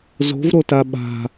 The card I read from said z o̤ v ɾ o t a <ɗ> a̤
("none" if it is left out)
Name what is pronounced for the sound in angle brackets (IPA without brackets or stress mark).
ɓ